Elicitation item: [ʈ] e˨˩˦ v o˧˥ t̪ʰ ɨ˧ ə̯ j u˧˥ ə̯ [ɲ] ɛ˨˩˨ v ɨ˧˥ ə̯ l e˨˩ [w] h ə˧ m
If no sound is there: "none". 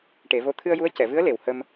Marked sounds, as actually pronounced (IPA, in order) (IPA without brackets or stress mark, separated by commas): ʈ, c, w